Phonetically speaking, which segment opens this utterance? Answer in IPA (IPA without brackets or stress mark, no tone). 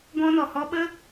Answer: ɡ